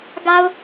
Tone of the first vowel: low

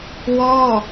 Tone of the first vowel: falling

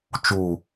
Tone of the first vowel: low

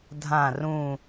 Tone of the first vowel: low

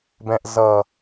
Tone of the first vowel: low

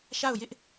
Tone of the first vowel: falling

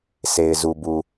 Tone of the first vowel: low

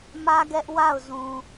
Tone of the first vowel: high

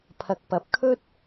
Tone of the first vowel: low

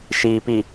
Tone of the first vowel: low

